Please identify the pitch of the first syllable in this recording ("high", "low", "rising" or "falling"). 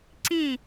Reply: falling